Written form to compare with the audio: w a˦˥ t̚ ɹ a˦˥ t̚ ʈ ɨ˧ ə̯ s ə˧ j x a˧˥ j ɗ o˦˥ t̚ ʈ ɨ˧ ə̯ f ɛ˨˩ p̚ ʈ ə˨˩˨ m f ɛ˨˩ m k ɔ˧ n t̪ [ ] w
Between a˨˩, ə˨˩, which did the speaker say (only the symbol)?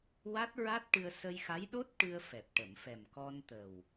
ə˨˩